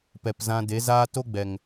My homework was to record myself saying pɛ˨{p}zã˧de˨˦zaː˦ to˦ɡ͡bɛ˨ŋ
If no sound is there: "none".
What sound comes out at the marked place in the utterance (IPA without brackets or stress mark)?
p